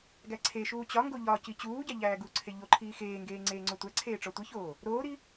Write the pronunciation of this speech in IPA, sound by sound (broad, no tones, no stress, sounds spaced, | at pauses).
ɡ æ ǀʰ e ʃ uː t͡ɕ ɒ ŋ ɡ o ʎ ɒ c i t͡ɕ uː ɟ æ ʎ æː ɡ u ǀʰ e ʎ o ǃʰ iː x eː ŋ ɡ eː ŋ͡ǀ eː ŋ͡ǀ o tʷ æ ǀʰ eː ʈ͡ʂ ɒ tʷ i ç oː | ɾ oː ɾ i